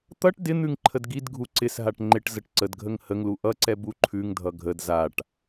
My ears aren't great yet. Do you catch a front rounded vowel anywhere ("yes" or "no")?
no